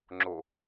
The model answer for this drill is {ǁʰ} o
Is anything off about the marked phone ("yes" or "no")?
yes